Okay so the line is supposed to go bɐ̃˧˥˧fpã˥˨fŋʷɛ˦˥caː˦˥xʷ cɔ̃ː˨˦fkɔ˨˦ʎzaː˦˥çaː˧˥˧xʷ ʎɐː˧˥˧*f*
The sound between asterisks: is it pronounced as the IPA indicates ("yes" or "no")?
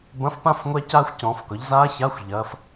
yes